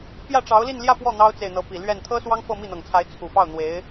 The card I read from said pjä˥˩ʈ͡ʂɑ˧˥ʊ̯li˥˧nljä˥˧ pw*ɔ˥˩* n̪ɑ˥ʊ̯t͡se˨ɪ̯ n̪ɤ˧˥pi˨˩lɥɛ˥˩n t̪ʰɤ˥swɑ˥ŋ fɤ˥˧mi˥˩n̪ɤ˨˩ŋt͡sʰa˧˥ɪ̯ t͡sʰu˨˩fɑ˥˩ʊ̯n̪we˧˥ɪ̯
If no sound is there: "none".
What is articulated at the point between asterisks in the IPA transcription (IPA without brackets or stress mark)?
ɔ˥˩